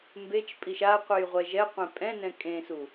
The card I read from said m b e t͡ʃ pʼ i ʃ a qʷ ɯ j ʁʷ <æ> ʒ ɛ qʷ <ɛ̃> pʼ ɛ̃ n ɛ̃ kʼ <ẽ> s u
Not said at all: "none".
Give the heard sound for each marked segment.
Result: ɛ, ẽ, ẽ

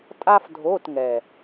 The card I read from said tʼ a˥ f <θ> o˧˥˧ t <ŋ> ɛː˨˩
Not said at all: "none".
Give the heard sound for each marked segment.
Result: dʱ, ŋ

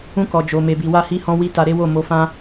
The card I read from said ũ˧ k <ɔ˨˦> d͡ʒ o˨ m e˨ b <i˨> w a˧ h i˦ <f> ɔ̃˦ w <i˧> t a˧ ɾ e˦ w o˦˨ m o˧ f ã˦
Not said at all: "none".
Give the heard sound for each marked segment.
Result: ɔ˨, i˨, h, i˦

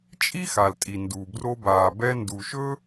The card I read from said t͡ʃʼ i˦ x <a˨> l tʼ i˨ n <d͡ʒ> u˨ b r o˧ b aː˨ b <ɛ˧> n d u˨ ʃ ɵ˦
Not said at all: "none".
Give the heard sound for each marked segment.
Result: a˨, d, ɛ˧

